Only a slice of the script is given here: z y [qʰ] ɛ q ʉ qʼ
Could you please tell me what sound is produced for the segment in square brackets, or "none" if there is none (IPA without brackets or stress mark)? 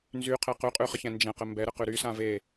qʰ